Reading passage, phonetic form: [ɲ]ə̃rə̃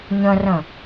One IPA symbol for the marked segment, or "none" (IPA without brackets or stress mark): ɲ